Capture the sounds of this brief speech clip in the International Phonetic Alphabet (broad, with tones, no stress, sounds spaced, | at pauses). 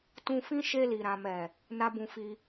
t ũ˧ f ĩ˦ ʃ e˧ l i˨ ɾ ã˨ m ɛ˨ | n a˦ b ũ˧ f i˧